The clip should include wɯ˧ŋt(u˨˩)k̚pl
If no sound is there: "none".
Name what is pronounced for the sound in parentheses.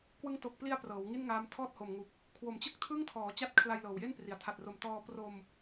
o˨˩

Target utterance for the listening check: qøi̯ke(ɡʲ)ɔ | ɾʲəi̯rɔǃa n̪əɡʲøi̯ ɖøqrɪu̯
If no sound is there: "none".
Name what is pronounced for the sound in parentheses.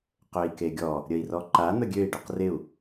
ɡʲ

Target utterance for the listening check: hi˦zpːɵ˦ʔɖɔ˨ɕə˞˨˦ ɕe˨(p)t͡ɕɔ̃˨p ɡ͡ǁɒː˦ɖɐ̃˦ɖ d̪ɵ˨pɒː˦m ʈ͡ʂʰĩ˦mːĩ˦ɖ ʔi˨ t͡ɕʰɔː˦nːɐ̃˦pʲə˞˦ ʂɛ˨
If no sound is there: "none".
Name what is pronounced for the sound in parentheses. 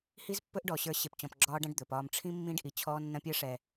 p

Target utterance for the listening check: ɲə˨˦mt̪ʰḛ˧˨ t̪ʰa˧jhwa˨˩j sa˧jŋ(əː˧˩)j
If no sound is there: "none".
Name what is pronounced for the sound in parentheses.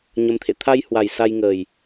əː˨˩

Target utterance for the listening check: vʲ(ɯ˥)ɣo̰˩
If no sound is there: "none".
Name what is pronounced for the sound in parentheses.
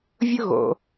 ʊ˥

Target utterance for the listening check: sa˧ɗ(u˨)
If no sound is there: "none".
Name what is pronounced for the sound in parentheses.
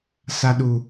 u˨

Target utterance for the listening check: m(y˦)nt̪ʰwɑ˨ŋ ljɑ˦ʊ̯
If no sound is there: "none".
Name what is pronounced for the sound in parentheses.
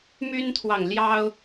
y˦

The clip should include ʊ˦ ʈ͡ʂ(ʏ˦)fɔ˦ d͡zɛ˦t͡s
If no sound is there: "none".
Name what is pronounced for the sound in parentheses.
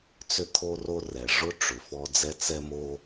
ʏ˩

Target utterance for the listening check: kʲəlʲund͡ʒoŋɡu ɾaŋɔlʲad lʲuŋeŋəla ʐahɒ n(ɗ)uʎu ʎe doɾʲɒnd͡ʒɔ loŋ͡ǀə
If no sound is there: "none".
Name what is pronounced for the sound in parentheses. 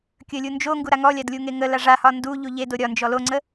d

